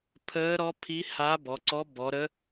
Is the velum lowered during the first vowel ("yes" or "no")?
no